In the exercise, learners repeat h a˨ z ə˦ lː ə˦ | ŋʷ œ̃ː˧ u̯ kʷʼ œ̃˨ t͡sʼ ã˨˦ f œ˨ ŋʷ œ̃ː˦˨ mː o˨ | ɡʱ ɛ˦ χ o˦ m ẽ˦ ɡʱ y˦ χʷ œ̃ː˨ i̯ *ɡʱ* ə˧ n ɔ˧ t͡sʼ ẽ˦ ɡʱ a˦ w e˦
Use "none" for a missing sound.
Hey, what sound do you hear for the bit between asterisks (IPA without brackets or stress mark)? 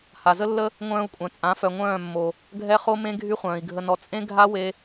ɡʱ